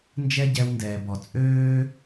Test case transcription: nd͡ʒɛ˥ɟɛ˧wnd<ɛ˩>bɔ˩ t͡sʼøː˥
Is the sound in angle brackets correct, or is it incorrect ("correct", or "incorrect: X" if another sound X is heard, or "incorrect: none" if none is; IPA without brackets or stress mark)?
incorrect: ɛː˩